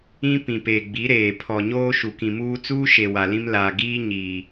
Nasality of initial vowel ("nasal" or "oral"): nasal